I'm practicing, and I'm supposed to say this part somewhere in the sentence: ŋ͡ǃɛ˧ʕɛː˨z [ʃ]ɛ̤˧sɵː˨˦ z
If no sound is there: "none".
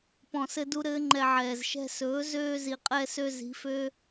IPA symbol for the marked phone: ʃ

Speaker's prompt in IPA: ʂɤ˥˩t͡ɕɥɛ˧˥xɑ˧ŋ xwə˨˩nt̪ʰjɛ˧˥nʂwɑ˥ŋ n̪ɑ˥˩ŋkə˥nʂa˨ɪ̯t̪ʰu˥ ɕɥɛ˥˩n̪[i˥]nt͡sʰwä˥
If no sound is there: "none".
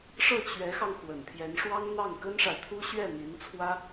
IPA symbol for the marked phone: i˧˥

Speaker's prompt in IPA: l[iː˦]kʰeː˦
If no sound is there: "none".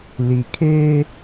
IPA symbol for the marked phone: iː˨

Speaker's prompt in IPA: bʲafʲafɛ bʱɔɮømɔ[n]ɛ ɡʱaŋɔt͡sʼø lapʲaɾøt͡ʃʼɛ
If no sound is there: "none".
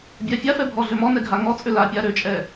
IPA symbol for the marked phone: n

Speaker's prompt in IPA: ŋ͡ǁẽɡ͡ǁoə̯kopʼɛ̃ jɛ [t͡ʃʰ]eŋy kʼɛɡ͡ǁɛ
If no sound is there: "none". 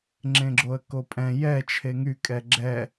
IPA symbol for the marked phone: t͡ʃʰ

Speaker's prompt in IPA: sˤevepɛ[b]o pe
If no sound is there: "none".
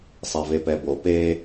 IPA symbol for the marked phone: b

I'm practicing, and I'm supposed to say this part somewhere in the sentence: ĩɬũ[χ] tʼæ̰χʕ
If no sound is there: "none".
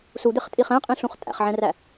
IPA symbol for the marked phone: χ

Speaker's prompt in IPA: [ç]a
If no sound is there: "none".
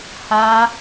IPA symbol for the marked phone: h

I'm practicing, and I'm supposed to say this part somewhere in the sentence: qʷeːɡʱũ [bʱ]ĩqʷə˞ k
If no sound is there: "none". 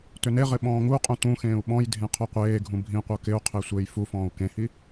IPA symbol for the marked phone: bʱ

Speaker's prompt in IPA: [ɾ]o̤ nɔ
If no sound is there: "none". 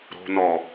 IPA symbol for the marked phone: ɾ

